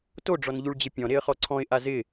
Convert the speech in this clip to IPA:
t o ɖ͡ʐ ɔ n ʎ u ɭ d͡ʑ ɪ pʲ ɔ̃ ɾ e ə̯ χ ɔ ǀʰ ɔ̃ ɪ̯ ʔ a z ɪ

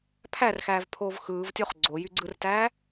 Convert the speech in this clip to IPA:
pʰ æ r x æː v pʰ oː v x ɯː v tʲ o χ ɡ͡ǀ o j y ɡ͡ǀ ɯ r t æː

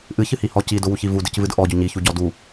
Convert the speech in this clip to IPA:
ʔ ɨ ç ɨ h i h ɔ c i d ʊ w u ç i v u d ɨ c v ɨ d ʔ ɔ ɟ ʊ ɲ i ç u ɟ ɔ d u

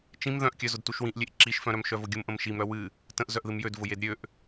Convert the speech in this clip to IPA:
t͡ʃ ĩ m ð œ̃ ʔ kʲ œ z ʊ d t u ʃ w ĩ ʔ lʲ e ʔ ǁ i ʃ f œ̃ ɾ œ m ʃ œ v ʊ ɡʲ ʊ m ʔ ə̃ m ʃ i m ɾ œ w ɨ | t ə̃ ʔ z œ ʔ ð ɨ m j ø d v ʊ j e d ɾʲ ø ʔ

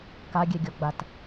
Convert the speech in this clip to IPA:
k a ɡʲ ɛ ɡʲ ɔ ɡ͡b a t

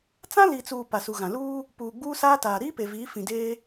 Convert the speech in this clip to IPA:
t͡s ã˦ l i˨ t͡s uː˨ p a˨ s u˨ ɣ ã˨ l uː˦ | p uː˨ ɡ͡b uː˦ s aː˦ t aː˨ ɾ iː˦ p e˨ v iː˨˦ f ĩ˨ d eː˦

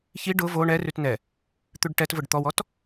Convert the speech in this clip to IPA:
ç i ɖ ʊ v o ɳ ɛ r ʉ t n ɛ | t̪ ʉ ɖ ʈ ɛ t v ʊ ɖ t̪ ɔ w ɔ t

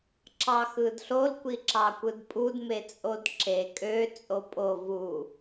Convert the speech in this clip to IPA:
ǁ ɑ x ɯ d ɬ o l kʷ i ǁ ɑ kʷ ɯ d pʼ u d m e t͡sʼ o d ǁ e kʼ ø t͡sʼ o pʼ o v u

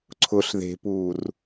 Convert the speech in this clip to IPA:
ǀʰ ʊ ɬ ð e̤ p uː r

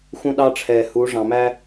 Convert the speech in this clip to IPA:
x ũ˦ ɗ ɑ˦ ʈ͡ʂʰ ɛː˨ h u˨˦ ʐ ɑ̃˨ m æ˦

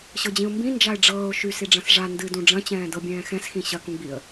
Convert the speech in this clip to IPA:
ɕ ɤ d͡ʑ ĩ ʊ̯ m b ĩ n d͡ʒ a ɪ̯ ɖ͡ʐ ɤː ʊ̯ ʃ y s i ɖ͡ʐ ɐ̃ s ʐ a n d ɨ d ũ ɖ͡ʐ ɐ̃ t͡ɕ ɛ̃ː d ɤ bʲ ɛ̃ː x ɛ̃ s x ĩ ɕ ɐ k ũ ɡ͡b i ə̯

